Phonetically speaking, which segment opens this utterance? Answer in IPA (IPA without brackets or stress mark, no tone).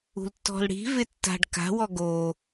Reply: ṳ